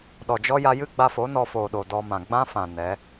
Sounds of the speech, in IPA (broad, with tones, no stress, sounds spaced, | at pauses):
ɗ ɔ˨ d͡ʒ ɔ˦ j a˧ j ɨ˦ ɡ͡b a˧ f o˨˦ n ɔ˧ f oː˨ ɗ o˨ d ɔ˧ m ã˨ ɡ͡b ã˦ f ã˨ n ɛ˨˦